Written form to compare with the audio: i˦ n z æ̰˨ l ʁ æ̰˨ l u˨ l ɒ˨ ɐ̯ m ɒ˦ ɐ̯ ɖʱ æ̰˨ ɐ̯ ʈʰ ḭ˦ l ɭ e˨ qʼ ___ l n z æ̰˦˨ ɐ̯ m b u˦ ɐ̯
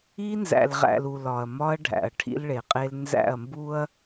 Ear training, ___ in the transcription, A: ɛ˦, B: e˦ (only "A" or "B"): B